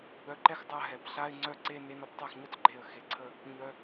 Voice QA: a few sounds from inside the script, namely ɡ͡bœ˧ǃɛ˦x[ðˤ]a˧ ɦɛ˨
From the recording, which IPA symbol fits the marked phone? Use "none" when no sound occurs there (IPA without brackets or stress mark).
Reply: dˤ